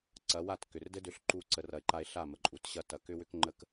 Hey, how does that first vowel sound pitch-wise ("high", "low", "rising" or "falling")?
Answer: rising